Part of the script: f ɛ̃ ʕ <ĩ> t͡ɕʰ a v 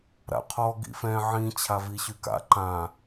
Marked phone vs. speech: correct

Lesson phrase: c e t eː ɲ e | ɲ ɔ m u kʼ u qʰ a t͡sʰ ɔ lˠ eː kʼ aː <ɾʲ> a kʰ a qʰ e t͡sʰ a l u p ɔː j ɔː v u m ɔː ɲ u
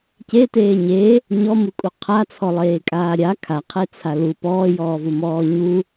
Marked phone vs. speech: correct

